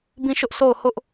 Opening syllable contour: falling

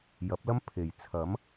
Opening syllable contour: rising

